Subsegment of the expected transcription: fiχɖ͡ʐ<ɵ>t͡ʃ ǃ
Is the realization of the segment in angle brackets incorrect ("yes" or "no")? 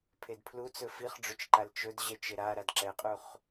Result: no